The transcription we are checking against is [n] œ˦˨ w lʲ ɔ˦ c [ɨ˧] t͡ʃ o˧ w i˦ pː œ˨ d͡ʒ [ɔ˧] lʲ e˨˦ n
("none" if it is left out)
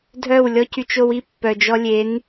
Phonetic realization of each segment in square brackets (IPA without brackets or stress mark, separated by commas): dʱ, y˧, ɔ˧